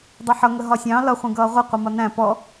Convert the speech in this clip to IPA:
dˤ i ħ ʌ ŋ ə ɦ ɒ sʲ ɑ̃ l ʌ χʷ ĩ ɡ ʌː ʁʷ ə qʷ ɪ m ɒ n æ̃ p ɔ

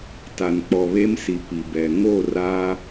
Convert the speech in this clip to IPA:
t a˨ n k͡p ɔ˨ β e˦ m s i˨ p i˨ b ɛ˨ ŋ o˦˨ r a˦

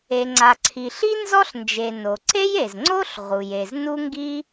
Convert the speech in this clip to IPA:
e˩ ŋ͡ǀ a˩ ǀʰ i˩ ɬ i˥ n z ɔ˥ ɬ n d͡ʒ e˩ n o˩ ǀ e˥ j e˩ z ŋ͡ǀ o˥ ɬ ʁ u˩ j e˩ z n u˥ ŋ ɡ i˥

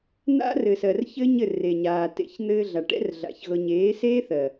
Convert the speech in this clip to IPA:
n̪ a̰˦ r ɘ˨ s ɜ˨ r ç ɘ˦ ɲ ɘ˦˨ r e˨ ɲ aː˨ t ḛ˨˦ ç n̪ ɘː˧ ɮ a˨ ʈ ɛ̰˦ r ɮ a̰˧ ç ɣ ɤ˦ ɲ eː˨˦ s eː˦ θ ɜ˨

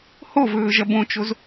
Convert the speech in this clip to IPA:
h o v ɵː ʒ ɐ b õ t͡ʃ o z

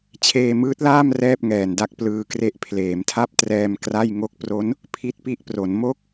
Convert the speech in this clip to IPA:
t͡ɕʰ eː˧ m ɯː˦˥ t̚ l aː˥˩ m r ɛː˥˩ p̚ ŋ ɛː˨˩ n d a˥˩ k̚ p l ɯː˧ k r e˦˥ ʔ pʰ l eː˩˦ m tʰ a˥˩ p̚ t r ɛː˧ m k r a˥˩ j ŋ o˦˥ k̚ p r o˦˥ n | pʰ i˦˥ t̚ p i˦˥ ʔ p r o˩˦ n m o˥˩ k̚

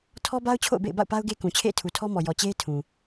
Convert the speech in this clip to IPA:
tʰ ɔ˦ b a˦ ʊ̯ t͡ɕʰ o̰˦˨ ʊ̯ b ḛ˦˨ ɪ̯ b a̰˦˨ ʊ̯ p a˦ ʊ̯ ɡ e˦ k ũ˨ t͡ɕʰ ḛ˦˨ ɪ̯ tʰ u˨ tʰ ɔ˦ m ɔ˨ j ɔ˨ t͡ɕ e˦ ɪ̯ tʰ ũ˨

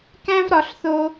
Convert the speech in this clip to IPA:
k æ̃˦ v ɾ ɒ˧ ɬ θ o˦

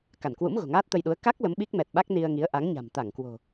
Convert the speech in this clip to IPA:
k a˧˩ n k w ṵ˧˥ m ɣ o̤˨˩ ŋ aː˦˥ t̚ t̪ ə˧ j ɗ u˨˦ ə̯ k a˦˥ k̚ l ə˨˦ m ɓ i˦˥ k̚ m ɛ˨˩ t̚ ɓ a˦˥ k̚ n i˧ ə̯ ŋ i˨˦ ə̯ ʔ a˨˦ ŋ ɲ a̤˨˩ m t̪ a˧˩ ŋ k w o̤˨˩

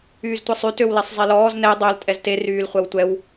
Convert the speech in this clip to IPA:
yː z tʷ e sˤ y t ø w l ɛ sˤ zˤ e l ɔː z n ɛ dˤ œ l tʼ ɛ z t e r yː l χʷ ɛ w tʷ ɛ w

